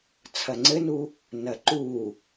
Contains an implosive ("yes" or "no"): no